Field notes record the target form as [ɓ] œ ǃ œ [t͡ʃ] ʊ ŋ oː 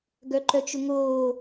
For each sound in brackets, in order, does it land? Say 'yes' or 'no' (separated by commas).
no, yes